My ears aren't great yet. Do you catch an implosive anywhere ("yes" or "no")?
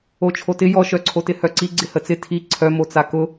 no